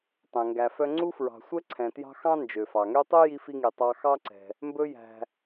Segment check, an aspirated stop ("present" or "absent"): present